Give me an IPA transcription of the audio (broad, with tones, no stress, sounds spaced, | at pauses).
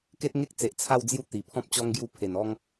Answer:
k e˦ t̚ ŋ e˦ k̚ t͡s e˨ ʔ t͡sʰ a˥˧ w d͡z j u˥˧ t̪ i˨˩ pʰ ɔ̃˦ p̚ t͡ɕ ɔ˦ ŋ ɡ j u˦ pʰ e˨˩ n ɔ˦ ŋ